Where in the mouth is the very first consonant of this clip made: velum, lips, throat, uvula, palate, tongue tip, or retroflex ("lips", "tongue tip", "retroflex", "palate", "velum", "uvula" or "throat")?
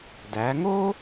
tongue tip